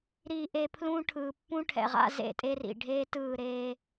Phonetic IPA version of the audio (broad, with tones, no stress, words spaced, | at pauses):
ɾi˨ʔe˨ pʰlũ˦ʈʰɯː˨ pːũ˦ʈʰɛ̰˨ʁa̰˦ zḛ˦tʼe˦rḭ˨ ɖʱeː˦tɯː˦˨ɾeː˦